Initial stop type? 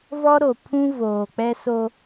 aspirated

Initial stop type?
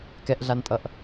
plain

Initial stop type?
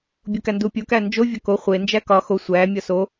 plain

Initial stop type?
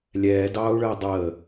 plain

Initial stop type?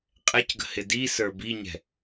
ejective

